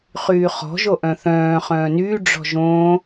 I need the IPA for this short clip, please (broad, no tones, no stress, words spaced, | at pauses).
χyːχɔ̤ ʒoʔœ̃θœ̃ː χœ̃ːnyː ɖ͡ʐɔ̤ʒõː